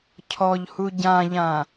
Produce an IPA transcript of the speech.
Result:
cʰɔʎhu ɟãʎã

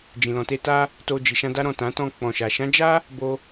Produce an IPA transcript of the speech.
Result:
d͡ʒĩ˨lɔ̃˨te˧ ta˧ | to˧d͡ʒi˨ʃã˧da˦ ɾɔ̃˦˨tã˨˦ tɔ̃˧ k͡pɔ̃˨ʃa˨ ʃã˨˦d͡ʒa˦ | bo˧

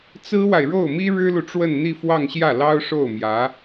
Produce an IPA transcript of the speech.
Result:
t͡sɹ̩˥wa˨ɪ̯ ɻo˥˩ʊ̯mi˥ ɻɻ̩˥lu˨ʈ͡ʂwə˥˧nn̪i˥˧ fwɑ˥˧ŋɕjä˥˩lɑ˥ʊ̯ ʂo˥˩ʊ̯mjä˧˥

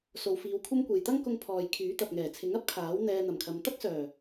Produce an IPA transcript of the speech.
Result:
so˨wfiː˨˧wkʷʰɐ˥mkʷe˨j t̪ɐ˥ŋkʊ˧ŋ pʰɔː˨jkʰyː˨˥t̪ɐ˨p̚ ŋɛː˨˩t͡sʰɪ˨˥ŋ ɐ˥p̚kʰaː˨˥w n̪ɛː˧n̪ɐ˨˩mkʰɐ˨˧m t̪ɐ˥k̚sœː˨˩

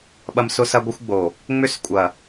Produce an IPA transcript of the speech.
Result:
ɓɐ˦msʊ˦sɐ˦ɡʷɪ˦xʷ ɡ͡bo˨ | ŋ͡mʏ˦skʷʼɐ˨

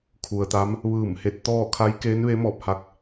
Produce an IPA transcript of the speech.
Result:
kʰu˩ə̯t̪a˧˥m | ʋɯː˧˩m he˧t̚t̪ɔː˥˨ kʰa˧˥j keː˧˥nʋe˧˥mɔː˧˩p̚ ha˧k̚

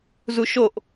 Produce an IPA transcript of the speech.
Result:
zuʃoʔ

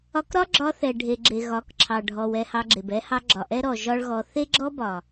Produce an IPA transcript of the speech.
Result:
ɒ˧kɾɒ˦ɡ͡ǁɒ˧ θɛ˨ ɖʱe˨ɡ͡ǁe˨ ɣɒ˨˦kǁʰɑ˨ɖʱɔ˨w ɛ˧hɑ˧ɡ͡ǁe˨b ɛ˧hɑ˧ ɡ͡ǁɒ˨ʔɛ˦ɾɔ˨ ʒɒ˦ɭɣɔ˧ θe˦ɡ͡ǁɔ˦bɒ˨

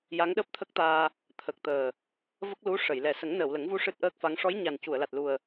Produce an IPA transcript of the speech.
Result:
ja˧˥ŋɗəː˦˥p̚t̪ʰə˦˥k̚t̪aː˧ | t̪ʰə˨˩k̚t̪əː˨˩ | və˦˥k̚lu˧˥ ʂə˨˩˨jlɛ˨˩ sə˨˩˦ŋnəː˨˩˨w lə˨˩˦ŋvu˧ ʂɨ˦˥t̚ʔəː˦˥k̚fa˧˥ŋ ʂɔ˧˥jɲa˨˩ncu˨˩˨ə̯ la˨˩t̚lu˨˩ə̯

